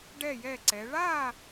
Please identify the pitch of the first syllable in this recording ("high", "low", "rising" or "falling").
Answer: falling